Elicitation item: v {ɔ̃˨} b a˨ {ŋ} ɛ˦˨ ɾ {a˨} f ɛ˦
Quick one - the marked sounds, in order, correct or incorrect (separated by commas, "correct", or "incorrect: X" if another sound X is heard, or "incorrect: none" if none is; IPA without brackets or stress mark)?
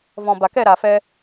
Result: correct, incorrect: k, correct